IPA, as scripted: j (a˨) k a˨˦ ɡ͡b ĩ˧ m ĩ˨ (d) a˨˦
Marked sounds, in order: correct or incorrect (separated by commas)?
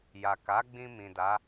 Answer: correct, correct